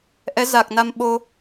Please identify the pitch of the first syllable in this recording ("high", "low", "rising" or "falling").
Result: rising